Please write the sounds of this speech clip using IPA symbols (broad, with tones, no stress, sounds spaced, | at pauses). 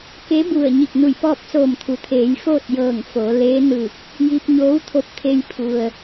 k e˧˥ b u˧˩ ə̯ ɲ i˧˩ k̚ n u˧˩ j p ɔː˥˨ p̚ s oː˧˩ m t̪ʰ u˩ t̪ʰ eː˩˧ j f oː˥˨ t̚ j ɤː˧˩ ŋ f o˩˧ l eː˧˥ n ɯː˧˩ k̚ | j i˧ p̚ ɲ oː˧˥ w t̪ʰ o˧ p̚ t̪ʰ e˧ j pʰ u˩ ə̯